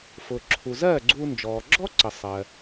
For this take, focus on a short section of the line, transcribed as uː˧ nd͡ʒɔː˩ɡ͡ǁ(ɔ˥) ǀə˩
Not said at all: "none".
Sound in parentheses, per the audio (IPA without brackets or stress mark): ɔ˥